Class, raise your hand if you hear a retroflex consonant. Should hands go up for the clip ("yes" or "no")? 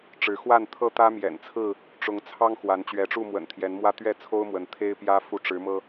yes